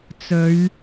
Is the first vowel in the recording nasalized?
no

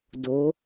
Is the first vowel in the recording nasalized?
no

